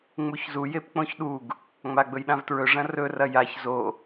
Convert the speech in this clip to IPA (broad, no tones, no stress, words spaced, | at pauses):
ŋ͡muçzu jepk͡põçɗuɡ | ŋ͡maɡ͡bɵjɗãvtɹɵ ʐɐ̃rɵ rɐjaç zo